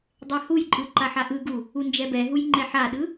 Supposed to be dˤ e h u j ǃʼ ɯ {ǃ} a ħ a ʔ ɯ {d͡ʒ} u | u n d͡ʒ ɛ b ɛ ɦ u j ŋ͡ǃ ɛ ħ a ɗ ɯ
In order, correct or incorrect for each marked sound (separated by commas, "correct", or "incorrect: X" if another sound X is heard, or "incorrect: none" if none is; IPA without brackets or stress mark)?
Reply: correct, incorrect: ɡ